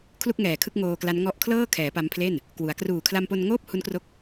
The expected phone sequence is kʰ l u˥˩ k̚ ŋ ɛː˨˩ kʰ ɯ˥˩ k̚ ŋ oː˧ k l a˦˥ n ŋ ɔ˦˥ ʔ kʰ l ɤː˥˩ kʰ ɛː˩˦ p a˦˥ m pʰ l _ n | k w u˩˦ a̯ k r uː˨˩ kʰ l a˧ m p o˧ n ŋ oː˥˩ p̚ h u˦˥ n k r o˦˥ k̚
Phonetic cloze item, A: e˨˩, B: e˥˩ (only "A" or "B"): B